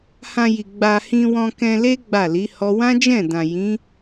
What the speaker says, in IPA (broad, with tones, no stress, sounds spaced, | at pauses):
h ã˧ j i˨ ɡ͡b a˧ h ĩ˧ w ɔ̃˧ k ɛ̃˧ l e˦ ɡ͡b a˦˨ l i˨˦ h ɔ˦ w ã˦ d͡ʒ ɛ̃˦˨ d ã˨ j ĩ˨˦